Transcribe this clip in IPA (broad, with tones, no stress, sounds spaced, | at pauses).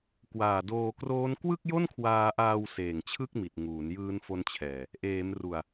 k w aː˨˩ d oː˧ k r oː˦˥ n k w ɯ˥˩ k̚ j o˥˩ n kʰ w aː˧ ʔ aː˧ w s eː˨˩ ŋ t͡ɕʰ ɯ˥˩ k̚ m i˨˩ t̚ ŋ uː˩˦ n j ɯː˦˥ n f o˦˥ n t͡ɕʰ ɛː˨˩ | ʔ eː˩˦ m r u˨˩ a̯